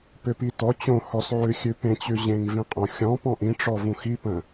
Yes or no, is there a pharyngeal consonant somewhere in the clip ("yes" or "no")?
yes